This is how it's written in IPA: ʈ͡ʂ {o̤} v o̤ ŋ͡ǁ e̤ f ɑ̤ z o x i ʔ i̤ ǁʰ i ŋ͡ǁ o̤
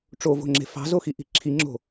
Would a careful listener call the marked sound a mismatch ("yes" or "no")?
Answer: yes